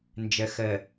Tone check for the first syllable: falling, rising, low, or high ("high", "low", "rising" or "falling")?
low